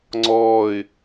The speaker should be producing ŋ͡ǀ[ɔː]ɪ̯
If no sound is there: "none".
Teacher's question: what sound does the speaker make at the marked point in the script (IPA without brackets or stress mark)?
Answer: ɔː